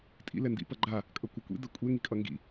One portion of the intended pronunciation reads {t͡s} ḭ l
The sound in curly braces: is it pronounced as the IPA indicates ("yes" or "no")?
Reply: no